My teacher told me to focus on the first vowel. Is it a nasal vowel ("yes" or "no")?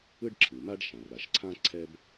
no